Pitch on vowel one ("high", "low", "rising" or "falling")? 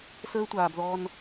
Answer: high